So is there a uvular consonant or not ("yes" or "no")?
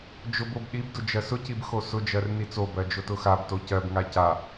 no